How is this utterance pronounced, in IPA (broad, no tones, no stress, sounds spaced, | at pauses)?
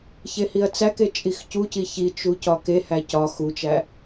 ç e h i ɐ̯ t͡s æ k e t͡ʃʼ i x c u c i ç i t͡ʃ u c ɒ k e h æ c ɒ x u t͡ʃ æ